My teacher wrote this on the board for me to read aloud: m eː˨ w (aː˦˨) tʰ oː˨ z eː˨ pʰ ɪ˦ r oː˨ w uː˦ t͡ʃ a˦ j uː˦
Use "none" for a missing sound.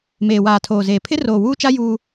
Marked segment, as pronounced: aː˨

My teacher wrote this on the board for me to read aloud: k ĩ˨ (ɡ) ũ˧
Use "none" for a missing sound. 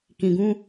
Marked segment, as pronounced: ɡ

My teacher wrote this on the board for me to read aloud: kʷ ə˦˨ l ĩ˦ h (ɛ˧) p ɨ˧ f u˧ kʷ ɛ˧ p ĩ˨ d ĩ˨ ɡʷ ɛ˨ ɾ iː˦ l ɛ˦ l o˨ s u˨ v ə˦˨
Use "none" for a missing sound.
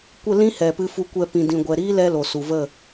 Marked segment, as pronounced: ɛ˨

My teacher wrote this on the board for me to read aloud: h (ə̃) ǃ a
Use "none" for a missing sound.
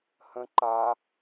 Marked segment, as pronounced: ə̃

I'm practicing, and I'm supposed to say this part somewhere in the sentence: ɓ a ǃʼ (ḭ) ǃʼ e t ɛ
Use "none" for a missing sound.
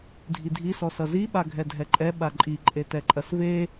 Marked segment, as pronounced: i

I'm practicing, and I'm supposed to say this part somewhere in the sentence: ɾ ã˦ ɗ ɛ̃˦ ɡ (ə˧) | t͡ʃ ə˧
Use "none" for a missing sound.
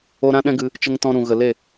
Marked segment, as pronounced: ɨ˧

